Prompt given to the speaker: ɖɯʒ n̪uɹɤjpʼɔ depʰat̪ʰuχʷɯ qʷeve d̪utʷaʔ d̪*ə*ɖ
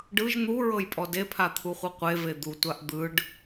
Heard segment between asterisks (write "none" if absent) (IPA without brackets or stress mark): ɯ